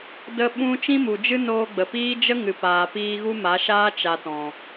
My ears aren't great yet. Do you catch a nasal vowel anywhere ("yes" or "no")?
yes